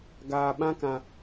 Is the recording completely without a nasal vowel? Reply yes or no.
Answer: no